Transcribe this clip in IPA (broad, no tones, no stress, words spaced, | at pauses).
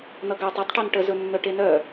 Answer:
nʌɡatˤ ɵtˤʈœn ʈəzɵnːœ ʈenœ